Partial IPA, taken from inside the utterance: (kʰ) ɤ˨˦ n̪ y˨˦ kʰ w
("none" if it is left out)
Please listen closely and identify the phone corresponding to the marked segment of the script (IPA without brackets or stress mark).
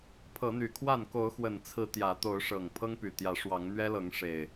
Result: pʰ